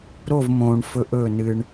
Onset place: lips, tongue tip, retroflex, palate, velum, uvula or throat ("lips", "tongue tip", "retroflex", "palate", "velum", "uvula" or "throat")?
tongue tip